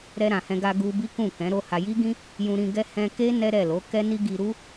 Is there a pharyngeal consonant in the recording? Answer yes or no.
no